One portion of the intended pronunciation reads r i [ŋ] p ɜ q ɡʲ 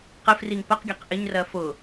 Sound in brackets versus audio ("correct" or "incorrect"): correct